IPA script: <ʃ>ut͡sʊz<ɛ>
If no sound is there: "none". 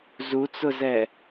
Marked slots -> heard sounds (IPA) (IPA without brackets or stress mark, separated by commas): z, ɛ